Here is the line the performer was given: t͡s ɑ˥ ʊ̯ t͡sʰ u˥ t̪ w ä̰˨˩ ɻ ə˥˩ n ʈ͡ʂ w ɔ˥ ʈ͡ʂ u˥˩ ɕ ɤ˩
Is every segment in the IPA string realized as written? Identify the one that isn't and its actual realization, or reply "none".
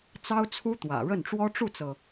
ɕ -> t͡s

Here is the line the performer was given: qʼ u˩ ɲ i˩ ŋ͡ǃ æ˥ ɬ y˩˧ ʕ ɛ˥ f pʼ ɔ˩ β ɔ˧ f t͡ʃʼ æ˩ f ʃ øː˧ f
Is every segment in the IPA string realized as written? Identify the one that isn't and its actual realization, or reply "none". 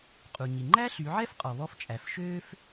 pʼ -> qʼ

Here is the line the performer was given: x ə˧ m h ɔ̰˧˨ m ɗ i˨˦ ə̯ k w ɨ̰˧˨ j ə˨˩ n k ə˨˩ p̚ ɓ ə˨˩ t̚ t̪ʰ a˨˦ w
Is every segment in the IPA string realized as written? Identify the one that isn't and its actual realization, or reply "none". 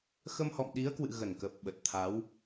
j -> ɣ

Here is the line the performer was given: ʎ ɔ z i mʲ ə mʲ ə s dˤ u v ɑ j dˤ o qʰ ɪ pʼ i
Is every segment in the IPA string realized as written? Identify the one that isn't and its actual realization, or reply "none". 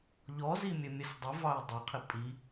none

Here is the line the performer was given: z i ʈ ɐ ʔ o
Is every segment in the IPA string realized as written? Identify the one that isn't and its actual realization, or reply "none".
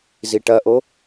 none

